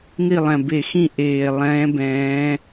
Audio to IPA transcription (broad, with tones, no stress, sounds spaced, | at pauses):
n i˦˨ lˠ ɛ̃˨˩ b e˧˩˧ x ĩ˦˨ ʔ eː˨˩ lˠ ɛ̃ː˧˥ b ɛ̃ː˧˥